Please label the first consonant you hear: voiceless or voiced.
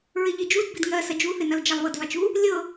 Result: voiced